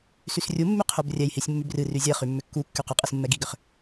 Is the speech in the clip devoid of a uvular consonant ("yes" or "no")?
no